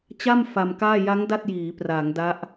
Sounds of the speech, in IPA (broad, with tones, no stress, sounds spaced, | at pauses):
t͡ɕ a˥˩ m f a˧ m k aː˥˩ j a˦˥ ŋ d a˥˩ t̚ j iː˩˦ p r aː˩˦ ŋ d a˦˥ ʔ